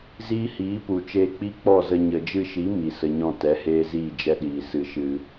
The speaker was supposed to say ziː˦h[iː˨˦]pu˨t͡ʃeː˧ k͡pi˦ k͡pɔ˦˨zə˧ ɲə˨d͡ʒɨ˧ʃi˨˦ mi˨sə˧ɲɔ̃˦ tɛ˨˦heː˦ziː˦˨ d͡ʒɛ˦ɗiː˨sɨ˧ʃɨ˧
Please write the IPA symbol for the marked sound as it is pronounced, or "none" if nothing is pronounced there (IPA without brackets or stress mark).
iː˨˦